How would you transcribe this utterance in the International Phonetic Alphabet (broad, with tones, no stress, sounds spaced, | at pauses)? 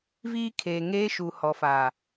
v iː˦ kʰ eː˨ ŋ eː˦ ʃ u˨ h ɔ˨ f a˨